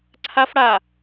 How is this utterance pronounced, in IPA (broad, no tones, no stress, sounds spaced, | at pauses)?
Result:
ǀʰ a f ɽ a